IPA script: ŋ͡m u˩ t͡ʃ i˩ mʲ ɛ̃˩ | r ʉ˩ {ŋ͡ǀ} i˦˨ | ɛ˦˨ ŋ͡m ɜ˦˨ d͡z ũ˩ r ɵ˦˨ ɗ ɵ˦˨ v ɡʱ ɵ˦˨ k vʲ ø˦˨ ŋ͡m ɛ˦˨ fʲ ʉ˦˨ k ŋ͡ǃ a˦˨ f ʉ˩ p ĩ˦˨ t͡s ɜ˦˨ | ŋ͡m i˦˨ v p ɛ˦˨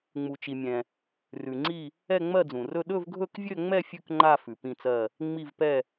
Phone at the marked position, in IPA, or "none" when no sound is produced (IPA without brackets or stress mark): ŋ͡ǀ